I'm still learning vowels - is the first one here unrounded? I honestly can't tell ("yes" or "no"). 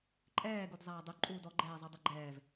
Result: yes